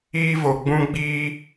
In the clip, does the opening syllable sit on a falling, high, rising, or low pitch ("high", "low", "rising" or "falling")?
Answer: high